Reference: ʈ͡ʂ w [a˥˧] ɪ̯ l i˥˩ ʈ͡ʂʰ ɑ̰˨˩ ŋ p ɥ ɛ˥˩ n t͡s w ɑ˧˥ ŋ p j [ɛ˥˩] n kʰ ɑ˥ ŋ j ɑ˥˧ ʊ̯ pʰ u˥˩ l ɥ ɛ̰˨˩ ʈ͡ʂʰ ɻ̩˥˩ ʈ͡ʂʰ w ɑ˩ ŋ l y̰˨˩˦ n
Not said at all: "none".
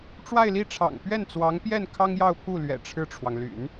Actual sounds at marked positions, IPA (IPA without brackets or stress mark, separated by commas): a˥˧, ɛ˥˩